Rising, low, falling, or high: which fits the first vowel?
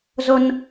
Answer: high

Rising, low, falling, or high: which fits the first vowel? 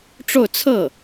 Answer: falling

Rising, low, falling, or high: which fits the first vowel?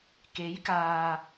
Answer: rising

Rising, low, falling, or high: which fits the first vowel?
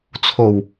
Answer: low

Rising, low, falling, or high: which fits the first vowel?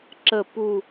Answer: low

